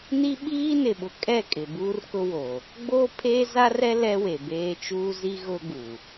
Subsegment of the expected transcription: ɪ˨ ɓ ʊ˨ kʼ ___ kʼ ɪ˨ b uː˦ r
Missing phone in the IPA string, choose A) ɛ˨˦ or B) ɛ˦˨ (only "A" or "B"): B